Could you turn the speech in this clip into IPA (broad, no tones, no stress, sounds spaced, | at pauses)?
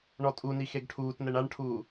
ɳ ɔ tʼ u n i x e ɡ ʈʰ uː t n ɛ ɳ a ɳ ʈʰ uː